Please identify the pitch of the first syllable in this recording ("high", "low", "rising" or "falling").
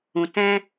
low